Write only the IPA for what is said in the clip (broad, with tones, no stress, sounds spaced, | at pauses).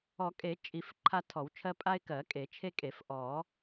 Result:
ɔ˨˩˦ kʼ e˨˩˦ t͡ʃʼ i˨˩˦ f ǃʰ a˦ tʰ ɔ˨˩˦ w t͡ʃʰ ɜ˦ pʼ a˦ ɪ̯ k ɜ˨˩˦ kʼ e˨˩˦ t͡ʃʰ e˦ kʼ e˨˩˦ f ʔ ɔ˨˩˦